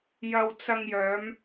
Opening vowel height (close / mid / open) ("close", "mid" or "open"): open